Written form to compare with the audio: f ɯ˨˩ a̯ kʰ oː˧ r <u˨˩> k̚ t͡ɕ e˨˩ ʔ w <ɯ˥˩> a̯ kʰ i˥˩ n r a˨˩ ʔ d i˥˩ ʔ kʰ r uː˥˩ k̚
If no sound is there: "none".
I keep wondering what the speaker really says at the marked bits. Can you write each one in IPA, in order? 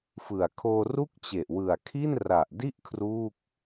u˥˩, ɯ˨˩

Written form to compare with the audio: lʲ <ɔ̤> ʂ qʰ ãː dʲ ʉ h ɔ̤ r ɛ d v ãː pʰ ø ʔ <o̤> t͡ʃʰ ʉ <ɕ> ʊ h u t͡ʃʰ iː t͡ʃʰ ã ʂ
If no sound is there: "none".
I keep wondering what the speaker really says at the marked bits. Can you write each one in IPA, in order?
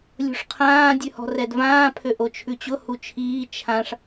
o̤, o, t͡ɕ

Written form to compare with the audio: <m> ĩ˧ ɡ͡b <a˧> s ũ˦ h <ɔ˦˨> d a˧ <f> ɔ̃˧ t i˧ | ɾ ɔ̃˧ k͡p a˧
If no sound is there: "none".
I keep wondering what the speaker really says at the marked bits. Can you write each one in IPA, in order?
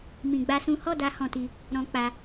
m, a˦, ɔ˦˨, h

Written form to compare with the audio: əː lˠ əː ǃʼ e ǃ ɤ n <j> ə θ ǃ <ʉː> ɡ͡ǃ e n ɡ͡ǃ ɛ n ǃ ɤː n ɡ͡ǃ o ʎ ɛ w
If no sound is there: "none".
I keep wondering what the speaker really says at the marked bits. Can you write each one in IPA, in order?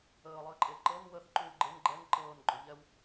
w, ʉː

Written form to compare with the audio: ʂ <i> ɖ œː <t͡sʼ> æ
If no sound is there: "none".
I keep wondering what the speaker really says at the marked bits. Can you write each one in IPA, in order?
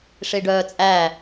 i, t͡sʼ

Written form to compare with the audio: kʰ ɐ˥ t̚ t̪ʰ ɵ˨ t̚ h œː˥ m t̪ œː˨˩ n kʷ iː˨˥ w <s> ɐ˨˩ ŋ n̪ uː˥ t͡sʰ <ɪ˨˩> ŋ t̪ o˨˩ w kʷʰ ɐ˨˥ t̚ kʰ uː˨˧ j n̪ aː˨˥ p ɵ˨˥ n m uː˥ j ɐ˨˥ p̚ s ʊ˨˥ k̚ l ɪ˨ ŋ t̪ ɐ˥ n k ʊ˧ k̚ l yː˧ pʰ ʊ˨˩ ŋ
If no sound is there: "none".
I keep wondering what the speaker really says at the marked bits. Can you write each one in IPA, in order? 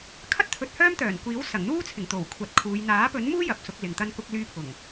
s, ɪ˨˩

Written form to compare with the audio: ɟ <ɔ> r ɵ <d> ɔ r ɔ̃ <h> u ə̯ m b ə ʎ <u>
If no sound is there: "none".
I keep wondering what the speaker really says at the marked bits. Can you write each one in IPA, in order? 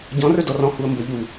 ɔ̃, d, h, u

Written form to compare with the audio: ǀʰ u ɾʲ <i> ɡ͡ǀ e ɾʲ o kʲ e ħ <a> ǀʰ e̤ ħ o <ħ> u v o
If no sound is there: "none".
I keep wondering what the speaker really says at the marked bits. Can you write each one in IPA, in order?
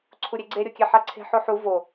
e, a, ħ

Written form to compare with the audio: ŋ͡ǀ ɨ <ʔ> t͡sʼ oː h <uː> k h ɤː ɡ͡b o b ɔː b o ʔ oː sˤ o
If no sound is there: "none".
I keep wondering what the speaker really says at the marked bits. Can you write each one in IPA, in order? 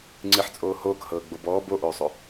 ħ, oː

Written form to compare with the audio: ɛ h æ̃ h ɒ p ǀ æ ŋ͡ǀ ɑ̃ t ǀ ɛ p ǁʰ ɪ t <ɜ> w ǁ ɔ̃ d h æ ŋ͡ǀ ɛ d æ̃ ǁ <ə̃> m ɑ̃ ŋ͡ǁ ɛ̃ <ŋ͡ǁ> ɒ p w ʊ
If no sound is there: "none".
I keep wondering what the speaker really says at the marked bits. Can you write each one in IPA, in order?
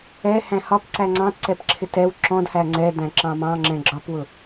ɛ, ɑ̃, ɡ͡ǁ

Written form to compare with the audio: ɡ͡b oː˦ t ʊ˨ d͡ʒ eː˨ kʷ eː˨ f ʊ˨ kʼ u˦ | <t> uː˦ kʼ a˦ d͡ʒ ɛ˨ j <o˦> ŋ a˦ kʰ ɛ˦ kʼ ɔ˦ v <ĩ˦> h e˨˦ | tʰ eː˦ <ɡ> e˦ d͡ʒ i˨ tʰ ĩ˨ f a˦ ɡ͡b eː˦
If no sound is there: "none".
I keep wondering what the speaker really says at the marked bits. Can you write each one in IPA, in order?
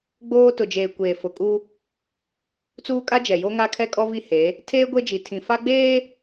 t͡s, o˦, i˦, ɡʷ

